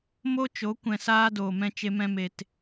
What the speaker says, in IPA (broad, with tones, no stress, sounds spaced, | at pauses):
m o˦ t͡ʃ o˨˦ kʷ ɛ̃˧ s aː˦ d oː˨ m ɛ̃˧ t͡ʃ e˧ m ɛ̃˧ m e˨ t